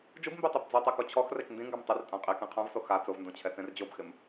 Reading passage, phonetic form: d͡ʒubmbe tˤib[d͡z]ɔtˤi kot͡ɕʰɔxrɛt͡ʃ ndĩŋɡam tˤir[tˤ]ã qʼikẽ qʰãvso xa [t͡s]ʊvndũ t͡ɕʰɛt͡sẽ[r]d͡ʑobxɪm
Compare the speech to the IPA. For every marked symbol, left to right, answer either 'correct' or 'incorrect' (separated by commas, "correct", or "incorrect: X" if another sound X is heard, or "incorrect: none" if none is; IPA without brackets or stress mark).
correct, incorrect: tʼ, correct, correct